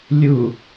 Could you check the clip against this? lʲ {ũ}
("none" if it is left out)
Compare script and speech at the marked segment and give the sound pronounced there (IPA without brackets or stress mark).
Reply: u